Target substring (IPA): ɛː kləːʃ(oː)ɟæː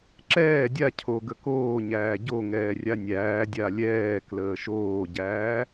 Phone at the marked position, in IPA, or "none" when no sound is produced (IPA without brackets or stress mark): oː